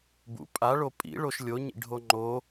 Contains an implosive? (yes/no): no